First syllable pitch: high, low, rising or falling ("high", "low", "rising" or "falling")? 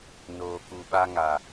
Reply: low